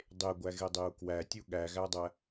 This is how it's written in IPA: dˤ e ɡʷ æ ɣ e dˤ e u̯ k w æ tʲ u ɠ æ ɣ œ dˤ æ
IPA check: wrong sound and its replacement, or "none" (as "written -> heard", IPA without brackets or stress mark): œ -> æ